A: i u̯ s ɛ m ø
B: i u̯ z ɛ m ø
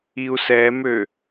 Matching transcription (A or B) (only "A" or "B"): A